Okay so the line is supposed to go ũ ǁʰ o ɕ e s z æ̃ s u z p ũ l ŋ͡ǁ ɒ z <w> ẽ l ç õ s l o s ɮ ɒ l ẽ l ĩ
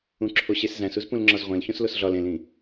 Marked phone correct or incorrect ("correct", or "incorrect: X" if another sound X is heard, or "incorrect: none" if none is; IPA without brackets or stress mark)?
incorrect: ʁʷ